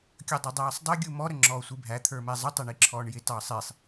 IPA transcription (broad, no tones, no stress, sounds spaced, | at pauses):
kʲ ʌ dˤ ɑ dˤ æː sˤ dˤ ɪ ɡʲ u m ɔ ɾ ə ŋ͡ǁ ɔː sʷ i bʱ æ t̪ʰ ə˞ m ɛ zˤ ə tˤ ɛ ɳ i ǁʰ ɔː ɳ j ɪ t ɑ sˤ i sˤ